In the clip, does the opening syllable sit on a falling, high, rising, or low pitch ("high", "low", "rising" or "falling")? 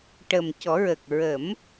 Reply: low